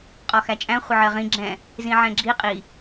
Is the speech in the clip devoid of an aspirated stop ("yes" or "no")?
yes